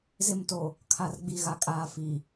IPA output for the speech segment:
z ɪ˦˨ m t o˨ | kʰ a˨ r ɡ͡b i˨ ɣ a˨ kʼ aː˨ f i˨

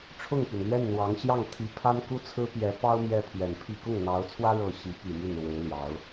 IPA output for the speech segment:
ʈ͡ʂʰ ʊ˥˩ ŋ p y˩ n l ɥ ɛ˥˩ n n̪ w ɑ˧˥ ŋ ɕ j ɑ˥˩ ŋ t̪ʰ i˧˥ pʰ a˥ n k u˥ t͡sʰ ɹ̩˥ p j ɛ˧˥ p ɑ˥ ʊ̯ m j ɛ˥ pʰ ɥ ɛ˨˩ n pʰ i˥˧ k ʊ˥˩ ŋ n̪ ɑ˧˥ ʊ̯ t͡sʰ w ä˥ ɻ ɤ˥˩ ɕ i˧˥ p i˨˩ m y˥˩ n ɻ w e˧˥ ɪ̯ l j ɑ˧˥ ʊ̯

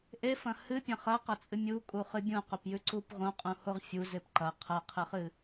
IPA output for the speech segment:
ʔ e f ɐ̃ h ɨ pʲ ɐ̃ χ ɐ q ɐ t͡sʼ ɨ mʲ u kʼ u χ ɨ bʲ ũ q ɵ p j ʉ ǀ u p ʁ õ qʼ ũ h o ʁ fʲ u z e p ǃ ɐ qʰ ɐ qʰ ɨ χ ɨ

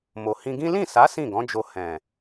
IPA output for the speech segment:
m o˨ h ĩ˧ ɡ ĩ˦ l ĩ˦˨ s a˨˦ s ĩ˦˨ ɡ ɔ̃˨˦ d͡ʒ o˧ h ɛ̃˨

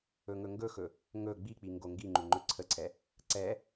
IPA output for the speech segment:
ɵ ŋ ɵ ŋ ɡ ɵ x ɵ | ŋ ɵ ɡ͡b i k͡p i ŋ ɡ o ŋ ɡ i ŋ͡ǃ u ŋ͡ǃ ɵ ǀʰ ə ǀʰ ɛ | ǀ ɛ

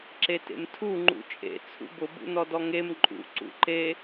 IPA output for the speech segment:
ǁ e t ḛ m tʰ u ŋ͡ǃ ṵ t͡ʃʼ ḛ t͡sʰ ṵ b ʊ b ṵ n ɔ d ɔ ŋ e m ǃʼ ṵ ǀ ṵ ǃ e

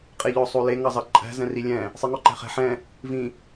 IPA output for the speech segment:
qʼ e ʎ ɔ sˤ o l e ŋ ɑ z ɑ ǃʼ æ̤ z ɛ̃ r i lʲ ɛ̃ | sˤ i ŋ ɔ ǃ æ̤ χ ɛ̤ ħ ɛ̃ | v ĩ

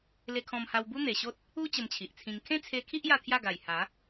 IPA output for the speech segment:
l e˧ kʰ ɔ̃˧ m h a˧ w b u˦ n̪ e˨˩ ɕ o˦ t̚ | u˦ t͡ɕ ə˧ m t͡ɕʰ i˨ ʔ t͡sʰ ĩ˧ ŋ kʰ ẽ˦ t͡sʰ e˧ kʰ i˦ ʔ j a˥˧ t̪ʰ j a˥˧ ɡ a˨˩ j h a˨˦

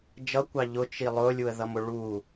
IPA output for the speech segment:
d͡ʒ ʌ kʷ ɑ ʎ ʊ t͡ʃ i lˠ ʊ lʲ u ə̯ ð ʌ m ʊ ɭ u

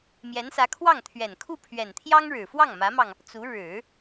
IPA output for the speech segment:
m j ɛ˧˥ n s ä˧˥ kʰ w ɑ˥˩ ŋ t̪ʰ ɥ ɛ˨˩ n kʰ u˥˩ pʰ ɥ ɛ˨˩ n t̪ʰ j ɑ˥ ŋ ɻ ɻ̩˨˩ f w ɑ˥˩ ŋ m ä˧˥ m ɑ˧ ŋ | t͡s u˧˥ ɻ ɻ̩˨˩˦

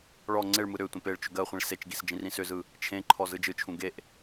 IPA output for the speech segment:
ɭ ɔ ŋ͡ǀ e ɭ m ɯ ɾ ʏ tʷ ẽ p e ɭ t͡ʃ ʏ ɡ ɜ χʷ ĩ ɭ s e t͡ʃ ɡ i s d͡ʒ ĩ r ĩ s ʏ z ɯ | t͡ʃʰ ẽ ǃʰ ɔ z ɯ d͡ʒ ɯ t͡ʃʰ ũ ɡ e ʔ

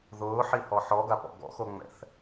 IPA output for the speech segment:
ð ʊː ħ i h ɔ ħ ɔ ɡ a p ɔ̰ ɡ ɔ̰ x o ŋ͡m ɛ̰ θ

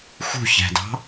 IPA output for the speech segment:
x ṳ ç æ̤ d ɑ̤

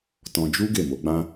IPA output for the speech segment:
t ɔ̃˧ d͡ʒ u˦ ɡ e˦˨ m o˨˦ ɡ͡b ã˦

